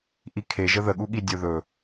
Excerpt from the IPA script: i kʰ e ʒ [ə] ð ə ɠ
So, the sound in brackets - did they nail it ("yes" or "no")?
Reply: yes